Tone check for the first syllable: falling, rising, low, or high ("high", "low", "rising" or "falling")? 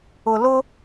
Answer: low